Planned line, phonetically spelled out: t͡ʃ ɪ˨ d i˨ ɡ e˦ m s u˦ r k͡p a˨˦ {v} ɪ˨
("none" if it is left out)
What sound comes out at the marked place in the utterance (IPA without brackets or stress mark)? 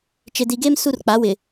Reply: w